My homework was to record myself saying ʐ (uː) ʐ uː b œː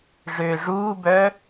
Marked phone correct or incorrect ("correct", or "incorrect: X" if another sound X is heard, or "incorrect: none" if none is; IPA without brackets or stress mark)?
incorrect: øː